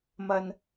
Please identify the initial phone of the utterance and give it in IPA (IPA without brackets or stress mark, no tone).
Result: m